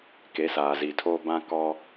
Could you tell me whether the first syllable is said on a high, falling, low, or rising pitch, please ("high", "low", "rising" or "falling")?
rising